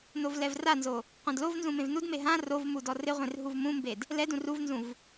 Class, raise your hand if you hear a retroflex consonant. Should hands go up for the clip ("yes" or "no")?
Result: no